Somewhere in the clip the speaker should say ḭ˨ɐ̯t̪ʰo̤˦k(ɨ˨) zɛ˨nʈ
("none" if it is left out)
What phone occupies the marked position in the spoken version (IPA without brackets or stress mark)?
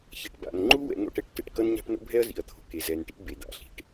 e˨